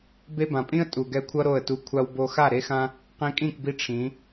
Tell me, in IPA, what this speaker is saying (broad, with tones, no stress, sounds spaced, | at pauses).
b e˧ b ã˨ pʼ ĩ˦ ə̯ tʼ u˨ ɡ ɛ˧ kʷʰ ʌ˦ ɾ o˦˨ ə̯ t u˧ kʷʰ a˦ w b o˦ x a˦˨ ɾ e˦ x ã˦ | q ĩ˧ kʼ ĩ˦˨ k b i˧ ʈ͡ʂʰ ĩ˨˦